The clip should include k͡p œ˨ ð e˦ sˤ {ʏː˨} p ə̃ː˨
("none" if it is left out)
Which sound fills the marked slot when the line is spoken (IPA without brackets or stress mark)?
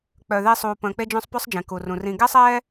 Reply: uː˨